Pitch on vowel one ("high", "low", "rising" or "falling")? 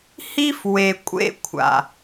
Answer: high